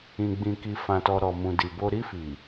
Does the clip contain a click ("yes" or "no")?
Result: no